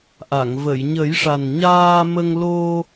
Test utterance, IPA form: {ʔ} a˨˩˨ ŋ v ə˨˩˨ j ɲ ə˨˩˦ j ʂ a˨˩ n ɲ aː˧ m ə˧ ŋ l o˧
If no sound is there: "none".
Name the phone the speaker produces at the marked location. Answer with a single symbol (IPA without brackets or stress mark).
ʔ